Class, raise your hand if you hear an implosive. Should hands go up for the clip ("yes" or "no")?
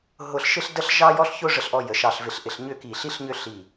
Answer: no